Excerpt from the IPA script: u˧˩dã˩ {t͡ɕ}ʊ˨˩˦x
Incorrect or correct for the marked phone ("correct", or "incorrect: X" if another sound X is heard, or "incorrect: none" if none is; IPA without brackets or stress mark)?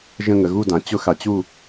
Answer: correct